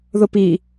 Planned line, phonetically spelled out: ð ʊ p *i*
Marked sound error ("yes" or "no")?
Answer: no